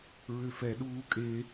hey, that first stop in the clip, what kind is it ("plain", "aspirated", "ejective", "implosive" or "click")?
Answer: implosive